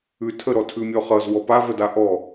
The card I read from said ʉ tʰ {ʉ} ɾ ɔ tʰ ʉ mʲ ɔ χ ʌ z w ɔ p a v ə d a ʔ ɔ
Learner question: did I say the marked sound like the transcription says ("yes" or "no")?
no